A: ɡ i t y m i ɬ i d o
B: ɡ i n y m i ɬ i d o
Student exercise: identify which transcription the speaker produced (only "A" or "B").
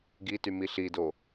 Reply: A